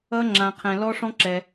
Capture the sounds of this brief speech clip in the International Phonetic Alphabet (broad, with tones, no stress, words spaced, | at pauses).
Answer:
ʌ˦˥ŋ͡ǁã˨qʰɛ̃˨ lɔ˦˥ʂɔ̃˦˥ǁɛ˨